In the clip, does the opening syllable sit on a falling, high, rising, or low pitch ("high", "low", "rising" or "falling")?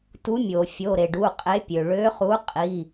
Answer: rising